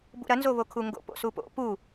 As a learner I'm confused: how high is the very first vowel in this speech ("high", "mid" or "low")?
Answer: high